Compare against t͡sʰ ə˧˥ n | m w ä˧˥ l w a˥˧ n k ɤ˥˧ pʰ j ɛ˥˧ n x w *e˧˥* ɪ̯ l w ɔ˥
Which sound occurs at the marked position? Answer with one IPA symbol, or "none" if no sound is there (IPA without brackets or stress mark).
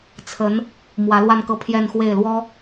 e˥˩